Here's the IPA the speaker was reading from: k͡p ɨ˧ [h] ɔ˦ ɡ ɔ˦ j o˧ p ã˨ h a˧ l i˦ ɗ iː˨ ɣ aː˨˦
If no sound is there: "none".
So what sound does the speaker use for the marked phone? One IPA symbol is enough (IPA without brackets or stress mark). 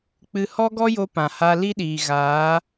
h